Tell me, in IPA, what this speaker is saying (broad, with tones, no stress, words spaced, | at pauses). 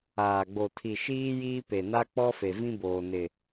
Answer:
aː˨ɡ͡bo˨tʰi˨ ʃiː˦jiː˦ pe˨na˦k͡pɔ˦fe˨ vĩ˦boː˨nɪ˨